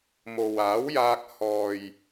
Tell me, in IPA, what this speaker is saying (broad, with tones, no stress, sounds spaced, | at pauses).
m o˨ w aː˨˥ w j aː˧ k̚ h ɔː˨ j